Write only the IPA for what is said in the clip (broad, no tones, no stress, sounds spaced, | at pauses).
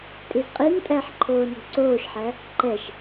tʼ i z qʼ i n tʼ æ ħ ǃʰ oː n o̤ ǀ oː ʃ ħ æ | ǃ ɛ ʃ